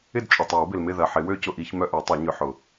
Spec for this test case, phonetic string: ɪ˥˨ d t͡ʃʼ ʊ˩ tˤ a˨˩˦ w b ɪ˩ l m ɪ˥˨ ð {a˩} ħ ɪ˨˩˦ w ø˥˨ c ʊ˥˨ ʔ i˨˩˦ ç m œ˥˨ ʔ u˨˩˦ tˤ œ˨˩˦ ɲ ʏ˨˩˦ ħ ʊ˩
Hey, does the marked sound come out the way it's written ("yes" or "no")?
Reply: no